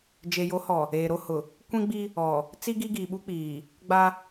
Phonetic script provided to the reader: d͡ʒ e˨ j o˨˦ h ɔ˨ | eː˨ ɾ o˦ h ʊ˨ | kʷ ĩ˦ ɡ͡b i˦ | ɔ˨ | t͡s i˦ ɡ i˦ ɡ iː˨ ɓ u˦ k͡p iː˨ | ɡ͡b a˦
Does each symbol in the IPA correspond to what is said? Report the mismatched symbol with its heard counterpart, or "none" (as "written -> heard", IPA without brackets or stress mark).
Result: none